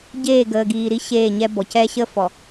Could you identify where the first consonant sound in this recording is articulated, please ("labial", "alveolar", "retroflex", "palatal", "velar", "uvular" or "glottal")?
palatal